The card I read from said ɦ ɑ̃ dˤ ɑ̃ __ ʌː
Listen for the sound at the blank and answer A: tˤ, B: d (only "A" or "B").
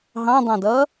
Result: B